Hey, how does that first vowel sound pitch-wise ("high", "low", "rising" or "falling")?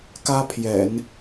high